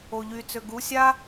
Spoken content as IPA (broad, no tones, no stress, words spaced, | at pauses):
oʎy t͡søɡu sʲa